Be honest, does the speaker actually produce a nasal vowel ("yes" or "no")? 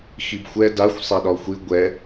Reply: no